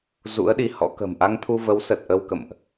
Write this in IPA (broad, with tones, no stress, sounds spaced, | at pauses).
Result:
z ṵ˧˥ ə̯ ɗ i˨˦ h ɔ̰˧˥ k ə̤˨˩ m ʔ a˧ ŋ t̪ʰ u˧ v ə˨˦ w s ə˨˩ t̚ ʔ ə˧ w k ə̰˧˨ m ʔ